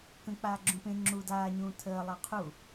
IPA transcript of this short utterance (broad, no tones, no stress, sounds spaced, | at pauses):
k ə̃ k͡p aː ɡ͡ǁ ũ p ẽ ŋ͡ǁ u d aː ɲ ũː tʰ əː lˠ ɑ qʰ u